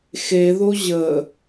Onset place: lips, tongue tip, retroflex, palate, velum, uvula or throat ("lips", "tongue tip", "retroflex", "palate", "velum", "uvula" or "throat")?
velum